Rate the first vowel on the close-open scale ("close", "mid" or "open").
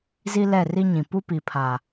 close